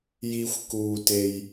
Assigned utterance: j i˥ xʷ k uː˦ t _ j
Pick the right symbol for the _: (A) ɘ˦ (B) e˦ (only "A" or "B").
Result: B